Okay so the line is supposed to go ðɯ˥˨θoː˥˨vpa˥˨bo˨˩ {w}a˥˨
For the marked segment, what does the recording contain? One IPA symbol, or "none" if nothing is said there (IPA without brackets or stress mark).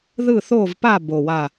w